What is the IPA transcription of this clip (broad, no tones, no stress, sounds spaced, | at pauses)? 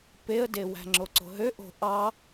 p e ə̯ d e w æ̤ ŋ͡ǁ o ǀ o̤ ɦ ø ʔ o̤ ʔ ɑ